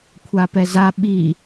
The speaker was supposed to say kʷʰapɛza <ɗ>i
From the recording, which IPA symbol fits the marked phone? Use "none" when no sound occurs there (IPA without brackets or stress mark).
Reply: ɓ